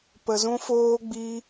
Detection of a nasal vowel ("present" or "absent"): present